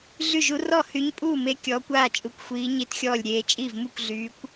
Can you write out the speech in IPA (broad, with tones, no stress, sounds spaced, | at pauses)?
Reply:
ɮ y˥˩ ʒ u˨˥ r ɔ˥˩ h y˨˥ ɲ pʼ uː˥˩ m e˨˥ kʲ ɔː˨˥ kʷ aː˥˩ t͡ʃʼ u˨˥ kʷ xʷ iː˨˥ ɲ i˥˩ t xʲ ɔː˥˩ lʲ ɾʲ eː˨˥ t͡ʃʼ i˥˩ v m u˥˩ kʷ ɮ yː˨˥ kʷ